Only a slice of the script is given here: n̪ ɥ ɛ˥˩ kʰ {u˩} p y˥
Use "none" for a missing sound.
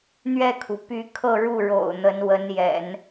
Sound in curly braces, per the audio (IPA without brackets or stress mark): u˩